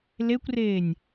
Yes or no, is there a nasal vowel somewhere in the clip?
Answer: no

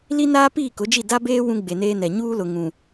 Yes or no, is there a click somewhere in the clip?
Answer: no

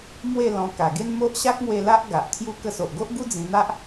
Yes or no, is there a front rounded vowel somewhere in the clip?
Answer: no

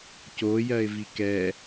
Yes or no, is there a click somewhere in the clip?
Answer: no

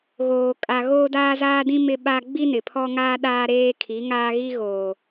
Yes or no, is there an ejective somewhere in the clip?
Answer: yes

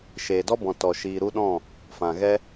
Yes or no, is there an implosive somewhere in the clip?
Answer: yes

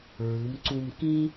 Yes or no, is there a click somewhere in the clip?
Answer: yes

